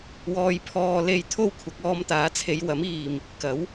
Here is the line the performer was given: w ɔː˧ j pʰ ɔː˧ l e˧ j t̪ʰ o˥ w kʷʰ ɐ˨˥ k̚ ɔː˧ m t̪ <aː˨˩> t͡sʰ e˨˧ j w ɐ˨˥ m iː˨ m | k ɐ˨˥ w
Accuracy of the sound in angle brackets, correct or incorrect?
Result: incorrect